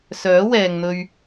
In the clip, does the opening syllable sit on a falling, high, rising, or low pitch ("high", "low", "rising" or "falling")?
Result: rising